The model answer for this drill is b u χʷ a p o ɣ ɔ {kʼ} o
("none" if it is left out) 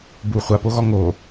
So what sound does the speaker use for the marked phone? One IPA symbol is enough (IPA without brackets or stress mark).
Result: ŋ